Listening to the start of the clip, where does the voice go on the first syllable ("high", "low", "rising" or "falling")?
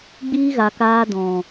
high